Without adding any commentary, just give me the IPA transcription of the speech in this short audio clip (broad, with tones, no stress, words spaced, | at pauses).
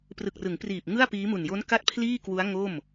prɯ˨˩k̚rɯ˩˦ŋpriː˨˩p̚ ŋɯ˥˩a̯piː˦˥mu˨˩n jo˦˥n ka˥˩t̚pʰliː˥˩ kwu˦˥a̯ ŋo˥˩m